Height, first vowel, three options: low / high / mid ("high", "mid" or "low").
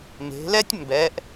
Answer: mid